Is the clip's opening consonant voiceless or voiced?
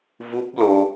voiced